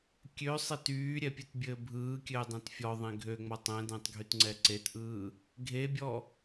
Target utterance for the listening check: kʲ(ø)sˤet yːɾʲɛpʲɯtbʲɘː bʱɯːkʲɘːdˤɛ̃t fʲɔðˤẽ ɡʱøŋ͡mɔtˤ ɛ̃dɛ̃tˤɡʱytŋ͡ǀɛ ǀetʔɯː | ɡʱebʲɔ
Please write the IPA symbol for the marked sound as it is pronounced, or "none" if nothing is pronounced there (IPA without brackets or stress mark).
ø